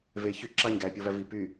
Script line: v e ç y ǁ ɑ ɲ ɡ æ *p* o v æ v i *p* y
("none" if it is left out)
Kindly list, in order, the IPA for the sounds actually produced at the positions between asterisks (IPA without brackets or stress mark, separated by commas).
pʲ, p